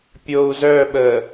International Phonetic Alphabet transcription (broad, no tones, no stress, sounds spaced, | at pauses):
pʲ o u̯ z œ ɓ ə